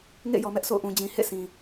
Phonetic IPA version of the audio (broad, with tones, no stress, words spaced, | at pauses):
ŋḛ˦˨jɔ˨mɛ˦ʔ sʰo̰˦˨ʊ̯ʔũ˨ d͡ʑĩ˨hḛ˦˨sʰĩ˨